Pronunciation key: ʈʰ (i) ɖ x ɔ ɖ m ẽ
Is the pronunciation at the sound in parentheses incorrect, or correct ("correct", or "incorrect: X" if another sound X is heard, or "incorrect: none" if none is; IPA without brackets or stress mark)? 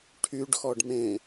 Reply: incorrect: y